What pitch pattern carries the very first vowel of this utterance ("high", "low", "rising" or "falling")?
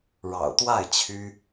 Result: low